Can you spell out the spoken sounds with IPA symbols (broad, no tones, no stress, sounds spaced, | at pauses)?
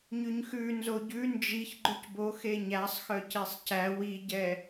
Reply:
ɲ ʉ ɲ x ʉ n z o ɟ ʉ n d͡ʒ i ç ɡ͡ǃ ʉ c b o x e ɲ æ sˤ x œ c e sˤ c æ w i ɟ ɛ